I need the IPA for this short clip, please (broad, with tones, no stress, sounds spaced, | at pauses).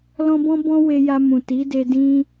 l ɔ̃˦ b ɔ̃˦ b ɔ̃˦ w e˧ j a˧ m ũ˨ t i˨˦ d e˧ d ĩ˦